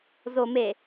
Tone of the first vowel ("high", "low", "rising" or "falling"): low